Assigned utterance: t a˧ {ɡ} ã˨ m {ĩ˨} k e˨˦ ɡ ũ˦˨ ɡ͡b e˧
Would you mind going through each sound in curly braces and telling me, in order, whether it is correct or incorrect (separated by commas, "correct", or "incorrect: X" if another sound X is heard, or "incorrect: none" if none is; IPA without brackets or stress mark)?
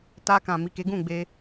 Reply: incorrect: k, incorrect: i˨